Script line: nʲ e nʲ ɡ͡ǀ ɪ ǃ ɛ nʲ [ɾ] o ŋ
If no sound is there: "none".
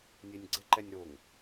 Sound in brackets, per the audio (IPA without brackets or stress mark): ɾ